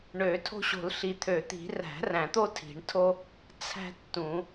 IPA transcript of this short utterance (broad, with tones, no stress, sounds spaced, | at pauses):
ɳ ø˨˩˦ tʰ o̤˦ ɕ o̤˨˩˦ l ɬ i˨˩˦ t̪ʰ ø˨˩˦ t̪ i̤˨˩˦ r æ̤˨˩˦ r æ̃˨˩˦ t̪ o˦ tʰ i̤˨˩˦ ɳ tʰ o˦ | t͡sʰ æ̤˦ tː ũ˨˩˦